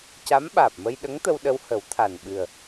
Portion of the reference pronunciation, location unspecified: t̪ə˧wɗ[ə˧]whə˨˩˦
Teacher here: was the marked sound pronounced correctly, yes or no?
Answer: yes